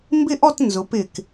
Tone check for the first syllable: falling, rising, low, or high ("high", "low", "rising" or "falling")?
falling